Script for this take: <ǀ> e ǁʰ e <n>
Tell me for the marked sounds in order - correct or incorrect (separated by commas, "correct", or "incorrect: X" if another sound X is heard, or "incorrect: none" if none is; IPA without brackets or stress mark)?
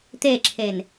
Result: incorrect: t̪, correct